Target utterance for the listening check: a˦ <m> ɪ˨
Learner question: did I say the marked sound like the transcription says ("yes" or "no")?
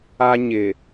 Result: no